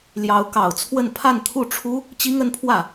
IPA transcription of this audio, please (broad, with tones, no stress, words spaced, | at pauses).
ljɑ˧˥ʊ̯kɑ˨˩ʊ̯t͡sʰwə˥˧n pʰa˥˧nt̪ʰu˥˩ʈ͡ʂʰu˥ | t͡ɕi˥ŋə˧˥npʰwä˥˩